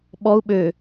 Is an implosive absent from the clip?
no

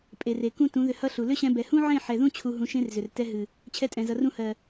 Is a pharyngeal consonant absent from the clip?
no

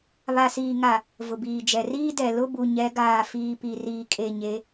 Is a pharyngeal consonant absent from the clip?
yes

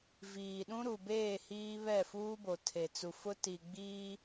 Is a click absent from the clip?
yes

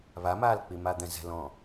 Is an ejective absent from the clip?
yes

